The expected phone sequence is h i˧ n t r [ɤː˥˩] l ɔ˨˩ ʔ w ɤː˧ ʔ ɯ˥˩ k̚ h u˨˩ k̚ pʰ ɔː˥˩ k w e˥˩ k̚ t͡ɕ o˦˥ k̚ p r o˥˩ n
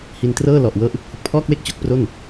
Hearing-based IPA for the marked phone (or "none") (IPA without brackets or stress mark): ɤː˥˩